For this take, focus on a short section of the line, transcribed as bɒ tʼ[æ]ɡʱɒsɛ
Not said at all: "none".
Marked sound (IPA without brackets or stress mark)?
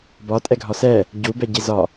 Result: ɛ